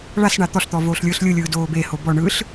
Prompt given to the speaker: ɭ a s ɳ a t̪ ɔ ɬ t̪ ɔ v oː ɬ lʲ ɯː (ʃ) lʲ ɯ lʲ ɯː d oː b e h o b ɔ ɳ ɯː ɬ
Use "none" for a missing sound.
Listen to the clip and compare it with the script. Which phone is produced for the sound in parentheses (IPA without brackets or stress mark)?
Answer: ɬ